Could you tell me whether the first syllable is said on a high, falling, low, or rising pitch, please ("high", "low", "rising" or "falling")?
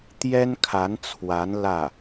high